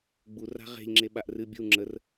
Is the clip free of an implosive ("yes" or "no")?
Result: no